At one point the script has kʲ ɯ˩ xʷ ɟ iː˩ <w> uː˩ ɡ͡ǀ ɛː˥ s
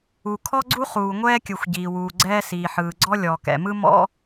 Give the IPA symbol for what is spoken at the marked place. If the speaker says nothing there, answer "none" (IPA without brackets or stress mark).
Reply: w